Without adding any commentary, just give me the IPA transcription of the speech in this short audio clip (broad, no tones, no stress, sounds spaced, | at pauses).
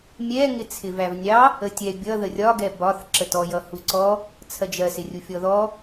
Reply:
mʲ ɛ ŋ ɪ t͡sʰ ɪ v æ v nʲ ɑ | ə tʲ ɛ bʲ ʌ ð ə rʲ ɒ ɡ ɛ b ɒ θ ǁ ə t ɔ j ʌ h u ǀ ɔ | t͡sʰ ɜ d͡ʒ ɜ s ɪ rʲ u fʲ ɔ ð ɔ